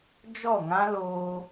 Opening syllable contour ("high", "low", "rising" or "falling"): falling